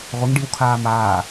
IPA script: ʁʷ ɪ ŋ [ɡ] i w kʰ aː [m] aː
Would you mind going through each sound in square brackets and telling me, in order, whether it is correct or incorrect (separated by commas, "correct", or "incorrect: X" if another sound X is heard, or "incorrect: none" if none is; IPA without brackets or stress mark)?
incorrect: ɖ, correct